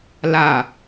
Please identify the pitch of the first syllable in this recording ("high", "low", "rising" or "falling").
low